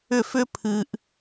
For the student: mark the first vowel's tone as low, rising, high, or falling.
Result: falling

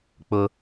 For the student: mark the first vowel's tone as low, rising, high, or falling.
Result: high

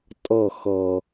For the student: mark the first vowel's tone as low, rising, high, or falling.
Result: falling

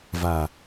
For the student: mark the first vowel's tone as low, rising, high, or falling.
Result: low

